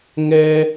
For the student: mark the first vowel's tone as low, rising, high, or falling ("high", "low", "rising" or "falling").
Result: high